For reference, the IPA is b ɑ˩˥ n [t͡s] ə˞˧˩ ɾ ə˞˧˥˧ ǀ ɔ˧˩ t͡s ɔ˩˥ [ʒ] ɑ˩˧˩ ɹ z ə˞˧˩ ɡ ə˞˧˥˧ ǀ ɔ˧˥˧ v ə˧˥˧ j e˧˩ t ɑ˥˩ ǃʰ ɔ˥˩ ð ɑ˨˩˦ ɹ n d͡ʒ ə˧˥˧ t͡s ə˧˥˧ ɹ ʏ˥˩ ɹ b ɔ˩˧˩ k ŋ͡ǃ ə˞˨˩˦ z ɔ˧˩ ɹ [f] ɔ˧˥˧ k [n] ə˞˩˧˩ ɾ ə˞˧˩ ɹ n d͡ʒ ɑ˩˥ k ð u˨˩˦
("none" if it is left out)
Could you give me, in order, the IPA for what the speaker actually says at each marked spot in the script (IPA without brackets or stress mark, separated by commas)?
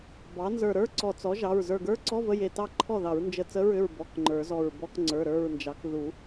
z, ʒ, b, ŋ͡ǀ